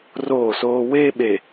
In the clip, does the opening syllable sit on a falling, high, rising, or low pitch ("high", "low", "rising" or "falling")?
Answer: falling